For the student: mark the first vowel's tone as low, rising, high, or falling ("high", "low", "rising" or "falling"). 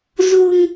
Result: low